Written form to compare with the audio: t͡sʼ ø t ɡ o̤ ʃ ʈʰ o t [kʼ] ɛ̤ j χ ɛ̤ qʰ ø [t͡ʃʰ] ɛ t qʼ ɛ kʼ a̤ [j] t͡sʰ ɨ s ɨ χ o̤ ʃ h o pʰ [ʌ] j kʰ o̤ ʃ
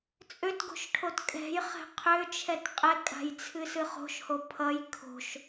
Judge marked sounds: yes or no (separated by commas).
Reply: yes, yes, yes, yes